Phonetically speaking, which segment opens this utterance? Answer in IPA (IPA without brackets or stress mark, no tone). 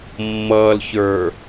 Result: mː